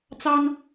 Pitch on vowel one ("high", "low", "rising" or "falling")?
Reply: high